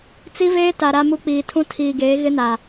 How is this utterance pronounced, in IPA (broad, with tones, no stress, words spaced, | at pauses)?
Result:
t͡si˦veː˦ ta˨ɾa˦mu˦ k͡piː˨tʰũ˦ tʰiː˨ɡeː˨˦ ɣɪ˦na˨